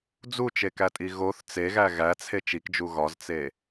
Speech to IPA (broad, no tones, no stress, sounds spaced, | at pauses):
d͡z u t͡ʃ e k æ tʼ i ɣ o θ t͡s e ɣ æ ɣ æ t͡sʰ e t͡ʃ i k d͡ʒ u ɣ ɒ z t͡s e